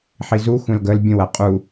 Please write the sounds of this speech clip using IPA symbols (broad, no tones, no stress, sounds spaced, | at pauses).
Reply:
ħ i z u xʷ ɛ̃ l ɡ ə l bʲ ə̃ w æ qʼ u